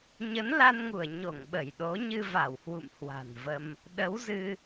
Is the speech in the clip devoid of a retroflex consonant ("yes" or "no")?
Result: yes